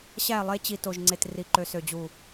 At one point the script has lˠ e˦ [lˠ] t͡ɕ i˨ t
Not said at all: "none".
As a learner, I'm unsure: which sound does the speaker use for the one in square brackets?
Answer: none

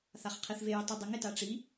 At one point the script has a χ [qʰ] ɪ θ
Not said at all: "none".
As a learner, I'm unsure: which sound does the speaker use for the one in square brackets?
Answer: qʰ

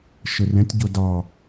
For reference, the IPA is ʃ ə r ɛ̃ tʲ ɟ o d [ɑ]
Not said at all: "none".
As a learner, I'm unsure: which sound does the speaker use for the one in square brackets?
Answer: ɑ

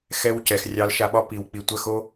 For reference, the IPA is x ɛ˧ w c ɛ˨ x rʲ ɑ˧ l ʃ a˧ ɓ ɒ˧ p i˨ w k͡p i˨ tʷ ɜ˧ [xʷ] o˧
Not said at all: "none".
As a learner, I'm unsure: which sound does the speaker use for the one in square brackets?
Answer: x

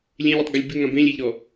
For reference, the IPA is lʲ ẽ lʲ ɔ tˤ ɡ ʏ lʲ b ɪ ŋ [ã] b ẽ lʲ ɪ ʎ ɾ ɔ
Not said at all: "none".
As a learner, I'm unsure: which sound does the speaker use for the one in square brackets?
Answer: ã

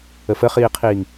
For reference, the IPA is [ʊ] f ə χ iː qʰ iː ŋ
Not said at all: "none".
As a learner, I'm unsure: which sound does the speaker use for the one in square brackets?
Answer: ə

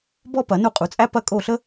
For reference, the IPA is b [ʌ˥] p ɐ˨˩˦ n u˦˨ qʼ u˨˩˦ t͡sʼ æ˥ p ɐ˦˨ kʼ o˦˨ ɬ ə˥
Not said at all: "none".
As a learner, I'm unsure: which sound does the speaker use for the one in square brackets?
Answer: ɔ˥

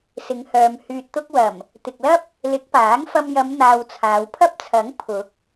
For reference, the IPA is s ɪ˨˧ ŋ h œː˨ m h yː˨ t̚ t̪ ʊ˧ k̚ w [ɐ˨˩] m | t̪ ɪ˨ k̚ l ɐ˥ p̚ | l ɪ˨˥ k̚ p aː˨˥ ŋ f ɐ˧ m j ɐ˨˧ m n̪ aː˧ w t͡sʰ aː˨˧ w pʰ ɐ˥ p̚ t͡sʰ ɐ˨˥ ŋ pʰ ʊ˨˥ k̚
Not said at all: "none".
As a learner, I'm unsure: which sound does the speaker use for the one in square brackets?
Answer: ɐ˨˩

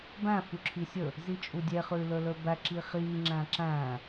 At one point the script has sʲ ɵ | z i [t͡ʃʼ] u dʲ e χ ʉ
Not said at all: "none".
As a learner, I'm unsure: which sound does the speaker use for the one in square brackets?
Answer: t͡ʃʼ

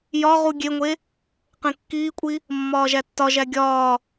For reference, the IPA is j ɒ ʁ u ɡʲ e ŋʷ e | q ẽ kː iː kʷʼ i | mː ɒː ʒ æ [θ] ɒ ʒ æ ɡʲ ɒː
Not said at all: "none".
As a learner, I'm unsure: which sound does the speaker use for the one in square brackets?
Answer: tː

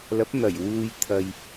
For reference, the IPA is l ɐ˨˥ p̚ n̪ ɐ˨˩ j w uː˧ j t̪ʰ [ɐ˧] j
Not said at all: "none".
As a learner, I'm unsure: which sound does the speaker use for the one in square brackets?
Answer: ɐ˧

